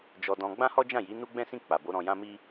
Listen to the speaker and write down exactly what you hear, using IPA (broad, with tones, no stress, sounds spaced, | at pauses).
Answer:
d͡ʒ ɔ˧ d ɔ̃˧ ɡ͡b ã˦ h ɔ˦ d͡ʒ ã˦˨ j i˨˦ n u˦ ɡ͡b ɛ̃˦ s ĩ˦˨ k͡p a˨ b o˨˦ ɾ ɔ̃˧ j ã˦ m i˦